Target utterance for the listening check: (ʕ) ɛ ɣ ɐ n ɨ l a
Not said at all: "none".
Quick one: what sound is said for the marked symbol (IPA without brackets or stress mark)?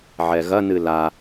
ʕ